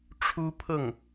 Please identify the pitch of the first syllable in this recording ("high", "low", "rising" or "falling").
high